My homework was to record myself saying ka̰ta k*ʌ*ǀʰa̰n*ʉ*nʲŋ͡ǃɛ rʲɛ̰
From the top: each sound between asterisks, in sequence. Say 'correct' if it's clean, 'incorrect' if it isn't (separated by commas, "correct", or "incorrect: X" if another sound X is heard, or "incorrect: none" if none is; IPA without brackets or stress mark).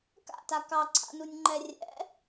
incorrect: ɑ, incorrect: u